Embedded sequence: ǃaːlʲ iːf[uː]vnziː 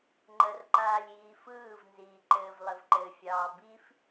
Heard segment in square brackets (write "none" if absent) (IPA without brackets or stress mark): ɯː